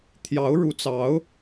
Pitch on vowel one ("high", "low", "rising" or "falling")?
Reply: rising